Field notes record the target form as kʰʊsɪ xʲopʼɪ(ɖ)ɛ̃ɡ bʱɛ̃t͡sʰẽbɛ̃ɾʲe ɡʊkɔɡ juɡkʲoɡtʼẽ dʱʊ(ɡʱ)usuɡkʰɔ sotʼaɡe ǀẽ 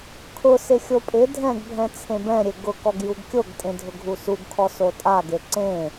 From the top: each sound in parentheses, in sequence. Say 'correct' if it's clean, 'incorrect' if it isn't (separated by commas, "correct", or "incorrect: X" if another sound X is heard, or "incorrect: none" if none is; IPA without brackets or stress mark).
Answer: incorrect: dʱ, correct